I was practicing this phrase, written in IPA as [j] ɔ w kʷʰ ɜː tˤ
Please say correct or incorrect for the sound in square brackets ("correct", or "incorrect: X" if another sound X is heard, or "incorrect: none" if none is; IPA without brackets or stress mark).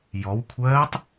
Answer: correct